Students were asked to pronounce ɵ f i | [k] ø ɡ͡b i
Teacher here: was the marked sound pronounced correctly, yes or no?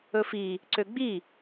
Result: no